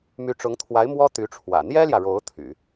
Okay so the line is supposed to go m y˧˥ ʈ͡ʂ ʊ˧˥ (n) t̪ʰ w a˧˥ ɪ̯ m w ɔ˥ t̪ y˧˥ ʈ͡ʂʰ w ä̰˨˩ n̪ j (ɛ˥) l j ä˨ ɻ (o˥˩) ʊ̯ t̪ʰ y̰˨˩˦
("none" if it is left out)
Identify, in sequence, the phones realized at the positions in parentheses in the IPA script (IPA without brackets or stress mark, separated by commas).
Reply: ŋ, ɛ˥, o˧˥